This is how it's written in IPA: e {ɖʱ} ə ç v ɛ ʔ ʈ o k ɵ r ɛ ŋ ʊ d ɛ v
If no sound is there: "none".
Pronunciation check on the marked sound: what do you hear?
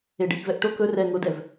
ɖ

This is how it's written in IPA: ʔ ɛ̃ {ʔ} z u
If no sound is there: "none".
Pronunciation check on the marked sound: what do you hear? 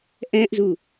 ʔ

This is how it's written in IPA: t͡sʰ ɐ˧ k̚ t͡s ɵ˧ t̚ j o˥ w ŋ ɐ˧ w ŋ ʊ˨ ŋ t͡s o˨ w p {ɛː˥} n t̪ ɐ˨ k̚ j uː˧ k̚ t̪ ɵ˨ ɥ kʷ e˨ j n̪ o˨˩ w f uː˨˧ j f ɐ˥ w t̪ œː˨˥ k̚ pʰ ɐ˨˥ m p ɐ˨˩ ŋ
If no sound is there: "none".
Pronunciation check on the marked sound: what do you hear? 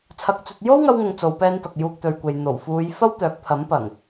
ɛː˧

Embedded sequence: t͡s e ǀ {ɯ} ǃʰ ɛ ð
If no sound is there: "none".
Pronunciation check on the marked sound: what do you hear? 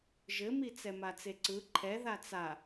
ɯ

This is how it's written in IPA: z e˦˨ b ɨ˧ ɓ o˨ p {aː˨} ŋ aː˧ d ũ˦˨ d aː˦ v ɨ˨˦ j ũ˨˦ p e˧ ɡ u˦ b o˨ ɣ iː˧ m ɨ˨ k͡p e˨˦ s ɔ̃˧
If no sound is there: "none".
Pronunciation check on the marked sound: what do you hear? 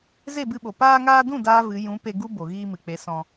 aː˧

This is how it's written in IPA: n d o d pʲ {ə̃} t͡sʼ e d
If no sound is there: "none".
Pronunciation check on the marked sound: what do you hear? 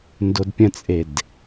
ə̃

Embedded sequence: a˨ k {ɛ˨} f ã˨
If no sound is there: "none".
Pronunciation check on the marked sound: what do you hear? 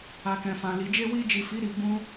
ɛ̃˨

